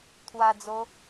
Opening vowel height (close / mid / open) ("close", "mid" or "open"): open